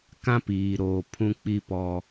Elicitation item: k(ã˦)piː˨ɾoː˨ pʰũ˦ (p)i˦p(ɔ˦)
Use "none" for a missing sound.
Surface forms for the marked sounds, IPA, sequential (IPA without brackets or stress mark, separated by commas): ã˦, k͡p, ɔ˦